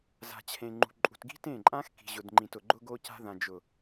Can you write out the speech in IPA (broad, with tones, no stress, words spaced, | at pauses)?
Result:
za̤˨t͡ɕʰẽ˨ ŋ͡ǃṳ˨ǃʼṳ˨tɡi̤˦ tẽ˦˨ǃʼã˦x ki̤˨ʑʊ˨dŋ͡ǃĩ˨t ʊ˨ɡ͡ǃʊ˦ɡo˦ca̤˦ ðã˨d͡ʒʊ˨